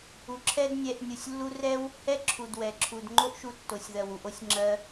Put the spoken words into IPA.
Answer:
u˨ǁʰɛ˦dnʲɛ˧ʔ nʲu˨sʲlːu˦ rɛ˦w | hɛ˦ǁʰu˨dwɛ˨ ǁʰu˨dŋ͡ǃo˦ʔʃu˧ tːo˨sʲðɜ˨wu˨ʔo˦sʲ ŋ͡ǁɜ˧

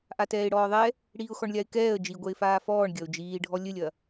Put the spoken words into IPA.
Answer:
ʔatɛːɪ̯ɽɔːðˤɛ | ɽiːʊ̯xɔɳlʲaɪ̯kɛːə̯ d͡ʒiɡʷɛɪ̯faː fɔːɳ ɡʲɐʊ̯d͡ʒiːɖʱɔ lʲɘlʲɐ

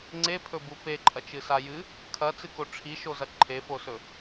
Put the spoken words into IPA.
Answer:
ŋ͡ǀepʰɵbu peǃʼɐt͡ʃɨsa jɨ | kʰɐt͡sɨko ʈ͡ʂʰiʃozɐ ǃʰefosɵ

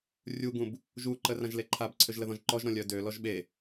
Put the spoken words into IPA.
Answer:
rʲuɡũb | ʒuǃə rãʒleǃʰabǀʰøʒ ləðɔ̃ʒǃɔʒɾɔ̃ lʲœdølɔʒ ɓe

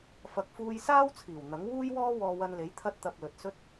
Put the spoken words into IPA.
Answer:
fɐ˨k̚fuː˧j saː˥wt͡sʰiː˨˩w n̪ɐ˨˥ŋwuː˥jwɔː˥ wɔː˧wɐ˧nle˨˥j t̪ʰɐ˧t̚t̪ɐ˨p̚ lɵ˨t̚sɵ˥t̚

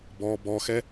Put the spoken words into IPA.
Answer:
bɔ bɔxɛ

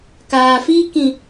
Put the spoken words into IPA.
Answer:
kaː˨fiː˦kĩ˨

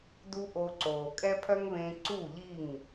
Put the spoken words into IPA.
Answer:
du˦ʔo˧ǀoː˨ kʼɛ˦pʰœ˦ŋβẽ˧ ǀu˦˨ʎi˦˨ŋ

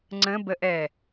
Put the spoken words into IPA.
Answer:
ŋ͡ǀə̃bəʔɛ

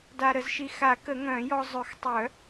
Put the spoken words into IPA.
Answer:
da˧ɾə˨˩˦zʃi˧ xa˨˩˦ kə˨˩˦ŋœ̃ː˨˩˦jɔ˧ zˤø˨˩˦xtˤœ˨˩˦

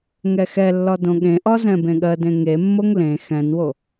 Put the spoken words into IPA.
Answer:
ŋɛxɛlːɒ dõɠẽʔɒ zɛ̃bẽɠɜdẽ ŋemːoŋ lẽ xɛ̃nwo

